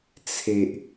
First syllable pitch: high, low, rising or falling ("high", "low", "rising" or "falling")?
low